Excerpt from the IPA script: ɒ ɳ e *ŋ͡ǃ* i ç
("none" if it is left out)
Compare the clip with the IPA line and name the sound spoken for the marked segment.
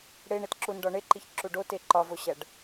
ǃ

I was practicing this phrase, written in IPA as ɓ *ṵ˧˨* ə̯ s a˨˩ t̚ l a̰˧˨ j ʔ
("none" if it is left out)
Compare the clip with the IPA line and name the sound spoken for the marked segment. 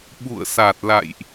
ṵ˧˨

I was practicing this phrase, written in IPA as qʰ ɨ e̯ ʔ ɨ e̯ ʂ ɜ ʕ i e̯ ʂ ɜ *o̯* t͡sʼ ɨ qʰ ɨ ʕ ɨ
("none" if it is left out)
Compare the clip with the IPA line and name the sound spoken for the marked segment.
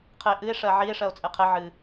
o̯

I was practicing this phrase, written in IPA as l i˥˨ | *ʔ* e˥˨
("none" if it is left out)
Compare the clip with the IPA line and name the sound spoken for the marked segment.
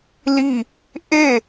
ʔ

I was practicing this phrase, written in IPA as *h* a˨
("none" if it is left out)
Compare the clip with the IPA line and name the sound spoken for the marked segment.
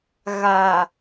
ɣ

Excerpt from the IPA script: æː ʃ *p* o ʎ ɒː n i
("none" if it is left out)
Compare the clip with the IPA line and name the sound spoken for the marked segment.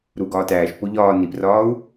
p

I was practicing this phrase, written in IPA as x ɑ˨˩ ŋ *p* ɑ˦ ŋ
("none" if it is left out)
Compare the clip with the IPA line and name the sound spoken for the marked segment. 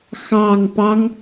p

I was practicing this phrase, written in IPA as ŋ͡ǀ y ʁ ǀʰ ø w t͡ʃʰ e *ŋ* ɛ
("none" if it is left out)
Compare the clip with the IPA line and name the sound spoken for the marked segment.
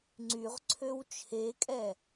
kʼ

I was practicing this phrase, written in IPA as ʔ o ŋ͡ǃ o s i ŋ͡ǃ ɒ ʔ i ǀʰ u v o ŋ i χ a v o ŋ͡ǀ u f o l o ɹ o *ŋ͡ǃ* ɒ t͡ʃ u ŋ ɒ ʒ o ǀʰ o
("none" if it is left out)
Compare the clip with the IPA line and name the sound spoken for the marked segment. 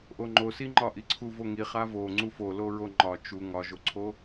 ŋ͡ǃ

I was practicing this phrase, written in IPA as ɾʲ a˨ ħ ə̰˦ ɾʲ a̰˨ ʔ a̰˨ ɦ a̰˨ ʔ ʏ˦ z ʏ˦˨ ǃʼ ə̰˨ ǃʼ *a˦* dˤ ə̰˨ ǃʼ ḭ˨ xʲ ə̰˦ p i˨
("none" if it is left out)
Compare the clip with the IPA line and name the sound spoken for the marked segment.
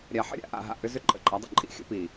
a˨˦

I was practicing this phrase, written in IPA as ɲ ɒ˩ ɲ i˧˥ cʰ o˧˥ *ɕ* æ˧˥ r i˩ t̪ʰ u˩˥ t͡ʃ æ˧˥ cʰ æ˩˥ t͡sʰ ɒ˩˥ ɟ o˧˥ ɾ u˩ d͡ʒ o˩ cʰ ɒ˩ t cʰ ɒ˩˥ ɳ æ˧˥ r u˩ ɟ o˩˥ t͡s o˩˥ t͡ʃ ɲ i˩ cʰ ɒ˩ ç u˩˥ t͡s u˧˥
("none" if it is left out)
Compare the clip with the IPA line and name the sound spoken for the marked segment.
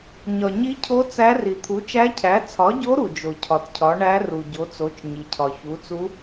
t͡s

